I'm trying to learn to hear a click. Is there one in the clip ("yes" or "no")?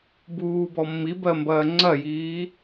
yes